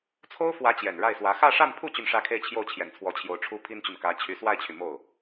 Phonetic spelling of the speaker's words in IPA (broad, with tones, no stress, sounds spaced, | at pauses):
t͡sʰ o˥ ʊ̯ f w ä˧˥ t͡ɕ j ɛ˨˩ n ɻ a˥˩ ɪ̯ s w ä˧˥ x ä˥˧ ʂ a˥˧ n pʰ u˥˧ t͡ɕ y˥˧ n ʂ ä˥˧ kʰ e˥˧ ɪ̯ t͡ɕʰ j o˥˩ ʊ̯ t͡ɕʰ j ɛ˨˩ n t͡sʰ w ɔ˧˥ t͡ɕʰ j o˧˥ ʊ̯ ʈ͡ʂʰ u˥ pʰ i˥ n t͡ɕ y˨ n k ä˧˥ t͡ɕʰ y˧˥ s w a˥˩ ɪ̯ t͡ɕʰ y˩ m o˥˩ ʊ̯